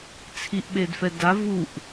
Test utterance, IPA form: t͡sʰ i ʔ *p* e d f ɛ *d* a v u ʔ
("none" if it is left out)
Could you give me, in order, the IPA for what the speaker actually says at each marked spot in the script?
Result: ɓ, d

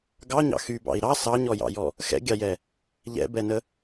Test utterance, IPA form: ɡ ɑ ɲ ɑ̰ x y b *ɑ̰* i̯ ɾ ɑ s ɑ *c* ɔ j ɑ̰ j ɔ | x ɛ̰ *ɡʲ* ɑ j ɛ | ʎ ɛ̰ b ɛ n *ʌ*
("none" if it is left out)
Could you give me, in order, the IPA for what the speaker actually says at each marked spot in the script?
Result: ɑ̰, ɲ, ɡʲ, ə

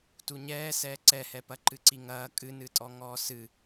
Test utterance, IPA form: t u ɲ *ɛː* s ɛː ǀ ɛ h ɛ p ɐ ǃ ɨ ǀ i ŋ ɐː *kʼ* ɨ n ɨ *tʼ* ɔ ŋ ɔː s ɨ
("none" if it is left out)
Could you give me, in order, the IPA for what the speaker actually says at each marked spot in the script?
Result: ɛː, kʼ, tʼ

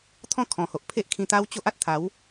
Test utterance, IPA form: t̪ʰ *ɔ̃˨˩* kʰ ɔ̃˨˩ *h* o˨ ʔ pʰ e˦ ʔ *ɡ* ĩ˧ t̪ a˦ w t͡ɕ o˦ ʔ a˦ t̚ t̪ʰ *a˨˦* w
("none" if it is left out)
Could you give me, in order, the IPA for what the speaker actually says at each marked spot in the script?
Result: ɔ̃˥˧, h, kʰ, a˨˦

